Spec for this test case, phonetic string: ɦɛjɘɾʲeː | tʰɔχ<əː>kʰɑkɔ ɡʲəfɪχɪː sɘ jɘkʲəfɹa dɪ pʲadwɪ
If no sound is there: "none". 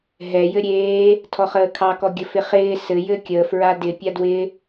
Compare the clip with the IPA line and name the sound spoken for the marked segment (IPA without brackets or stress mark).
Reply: əː